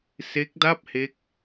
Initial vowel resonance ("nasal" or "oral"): oral